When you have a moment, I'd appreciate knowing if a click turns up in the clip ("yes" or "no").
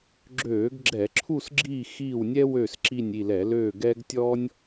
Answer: yes